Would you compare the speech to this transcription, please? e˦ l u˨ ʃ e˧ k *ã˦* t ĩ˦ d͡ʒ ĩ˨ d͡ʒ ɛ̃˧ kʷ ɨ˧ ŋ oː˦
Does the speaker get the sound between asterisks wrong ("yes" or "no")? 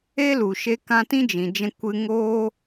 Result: yes